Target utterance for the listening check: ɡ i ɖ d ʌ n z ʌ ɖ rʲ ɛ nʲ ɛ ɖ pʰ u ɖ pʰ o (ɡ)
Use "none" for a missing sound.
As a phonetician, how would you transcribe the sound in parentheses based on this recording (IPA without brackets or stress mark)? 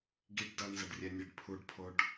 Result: ɖ